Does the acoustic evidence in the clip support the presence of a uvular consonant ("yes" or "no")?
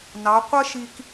yes